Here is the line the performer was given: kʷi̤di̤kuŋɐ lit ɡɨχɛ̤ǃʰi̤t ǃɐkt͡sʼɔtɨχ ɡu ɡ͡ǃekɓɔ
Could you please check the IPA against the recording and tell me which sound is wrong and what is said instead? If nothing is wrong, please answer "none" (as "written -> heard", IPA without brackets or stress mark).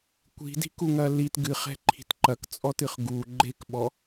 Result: none